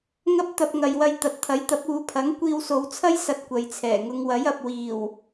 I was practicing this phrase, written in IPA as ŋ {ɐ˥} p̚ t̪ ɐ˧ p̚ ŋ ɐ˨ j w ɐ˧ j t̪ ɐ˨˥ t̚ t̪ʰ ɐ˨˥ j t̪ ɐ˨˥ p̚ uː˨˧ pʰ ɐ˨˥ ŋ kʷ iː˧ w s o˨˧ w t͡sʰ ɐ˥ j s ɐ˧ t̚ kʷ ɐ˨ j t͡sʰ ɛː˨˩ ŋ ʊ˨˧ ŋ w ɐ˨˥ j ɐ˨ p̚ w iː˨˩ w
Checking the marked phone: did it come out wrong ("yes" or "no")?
no